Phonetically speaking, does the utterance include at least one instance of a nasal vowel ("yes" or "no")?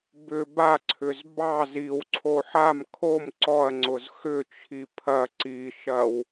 no